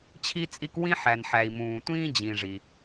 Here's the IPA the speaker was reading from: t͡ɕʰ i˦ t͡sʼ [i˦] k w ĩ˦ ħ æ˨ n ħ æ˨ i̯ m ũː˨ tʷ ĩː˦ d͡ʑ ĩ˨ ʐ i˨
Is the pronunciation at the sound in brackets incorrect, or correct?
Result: correct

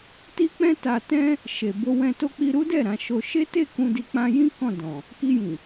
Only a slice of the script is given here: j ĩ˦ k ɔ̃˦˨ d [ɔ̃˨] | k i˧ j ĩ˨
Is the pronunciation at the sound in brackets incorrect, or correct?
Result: correct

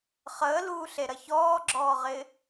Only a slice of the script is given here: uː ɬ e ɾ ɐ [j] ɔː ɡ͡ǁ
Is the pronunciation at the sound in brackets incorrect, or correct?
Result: incorrect: ç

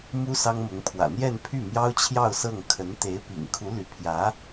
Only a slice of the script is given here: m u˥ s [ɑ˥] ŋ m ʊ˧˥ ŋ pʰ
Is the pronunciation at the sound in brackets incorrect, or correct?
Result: correct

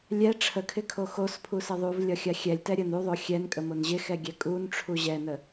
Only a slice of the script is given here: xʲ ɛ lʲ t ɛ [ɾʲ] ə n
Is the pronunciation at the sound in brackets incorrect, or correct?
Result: correct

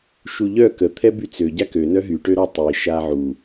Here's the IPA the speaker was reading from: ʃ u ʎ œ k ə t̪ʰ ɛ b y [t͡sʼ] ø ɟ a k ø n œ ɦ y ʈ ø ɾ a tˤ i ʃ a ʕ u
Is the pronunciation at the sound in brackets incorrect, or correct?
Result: incorrect: t͡s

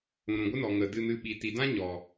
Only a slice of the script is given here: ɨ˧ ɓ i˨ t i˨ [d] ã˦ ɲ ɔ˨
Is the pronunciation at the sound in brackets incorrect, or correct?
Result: correct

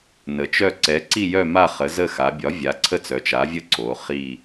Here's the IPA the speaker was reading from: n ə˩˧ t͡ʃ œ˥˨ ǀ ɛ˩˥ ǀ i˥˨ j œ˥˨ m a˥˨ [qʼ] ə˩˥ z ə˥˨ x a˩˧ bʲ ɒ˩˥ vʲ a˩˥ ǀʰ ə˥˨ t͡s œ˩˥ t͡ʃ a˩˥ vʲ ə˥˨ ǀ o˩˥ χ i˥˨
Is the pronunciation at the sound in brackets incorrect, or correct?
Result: incorrect: χ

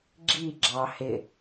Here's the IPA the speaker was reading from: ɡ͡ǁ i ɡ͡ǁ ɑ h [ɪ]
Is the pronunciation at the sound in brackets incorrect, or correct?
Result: correct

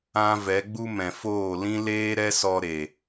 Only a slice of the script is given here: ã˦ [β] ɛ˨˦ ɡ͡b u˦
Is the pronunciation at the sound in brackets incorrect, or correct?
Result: incorrect: v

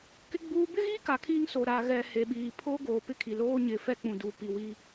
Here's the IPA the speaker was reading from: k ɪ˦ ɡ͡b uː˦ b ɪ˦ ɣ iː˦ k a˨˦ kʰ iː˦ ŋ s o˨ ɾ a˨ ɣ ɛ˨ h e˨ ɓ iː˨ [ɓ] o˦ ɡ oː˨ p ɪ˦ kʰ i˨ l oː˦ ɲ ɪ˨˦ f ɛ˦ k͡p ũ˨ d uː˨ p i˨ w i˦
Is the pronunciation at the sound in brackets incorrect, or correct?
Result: incorrect: pʰ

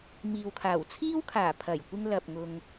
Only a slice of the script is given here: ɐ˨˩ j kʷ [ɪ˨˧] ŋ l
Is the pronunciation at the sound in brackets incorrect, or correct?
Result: incorrect: ɪ˧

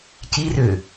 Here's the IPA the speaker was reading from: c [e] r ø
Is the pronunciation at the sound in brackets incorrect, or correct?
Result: incorrect: i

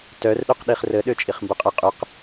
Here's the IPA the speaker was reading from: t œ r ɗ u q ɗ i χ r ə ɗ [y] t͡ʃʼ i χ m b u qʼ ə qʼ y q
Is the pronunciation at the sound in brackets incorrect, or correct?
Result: incorrect: ø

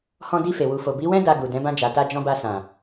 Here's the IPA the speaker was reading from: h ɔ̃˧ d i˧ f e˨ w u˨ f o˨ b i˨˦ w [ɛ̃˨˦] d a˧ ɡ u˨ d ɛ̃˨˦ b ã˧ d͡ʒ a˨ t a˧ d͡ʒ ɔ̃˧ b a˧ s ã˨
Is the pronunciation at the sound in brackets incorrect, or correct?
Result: incorrect: ɛ̃˦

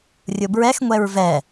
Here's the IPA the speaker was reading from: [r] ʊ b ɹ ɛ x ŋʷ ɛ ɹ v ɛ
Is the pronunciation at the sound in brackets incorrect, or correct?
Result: incorrect: rʲ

